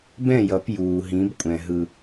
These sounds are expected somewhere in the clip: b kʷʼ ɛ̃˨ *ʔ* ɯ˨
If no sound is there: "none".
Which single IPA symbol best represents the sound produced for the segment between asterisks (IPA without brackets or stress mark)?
ɦ